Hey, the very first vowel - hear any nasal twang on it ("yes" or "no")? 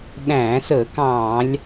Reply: yes